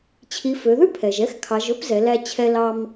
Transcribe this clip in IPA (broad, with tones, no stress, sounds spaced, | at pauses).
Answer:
t͡ɕʰ i˩˧ f ø˩˧ ð ʉ˥ pʰ ɛ˩ ʒ ɛ˧˥ x kʰ ɑ˩˧ ʒ ɵ˧˥ p z ɛ˩˧ l æ˧ t͡ɕʰ ɛ˧ l ɑ˧ m